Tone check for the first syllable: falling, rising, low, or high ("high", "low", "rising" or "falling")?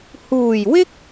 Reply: low